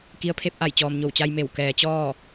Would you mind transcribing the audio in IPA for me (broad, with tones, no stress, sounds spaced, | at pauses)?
k i˧ ə̯ pʰ e˧˥ p̚ ʔ a˧˩ j t͡ɕ ɔː˩ m ɲ o˧˩ w t͡ɕ a˧ j m e˧˩ w k ɛː˩˧ t͡ɕ ɔː˥˨